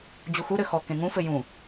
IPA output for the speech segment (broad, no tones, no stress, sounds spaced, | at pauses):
d͡ʑ u x u ɾ ɘ x ɔ k ẽ ŋ ũ f ɘ j ũ